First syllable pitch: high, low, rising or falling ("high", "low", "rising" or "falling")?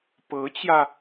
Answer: rising